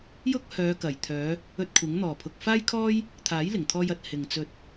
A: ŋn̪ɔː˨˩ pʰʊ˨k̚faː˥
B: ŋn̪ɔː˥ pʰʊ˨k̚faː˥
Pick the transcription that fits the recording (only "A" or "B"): A